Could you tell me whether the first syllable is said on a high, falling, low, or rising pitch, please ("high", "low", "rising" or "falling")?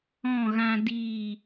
falling